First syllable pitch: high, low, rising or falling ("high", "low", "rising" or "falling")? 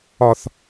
low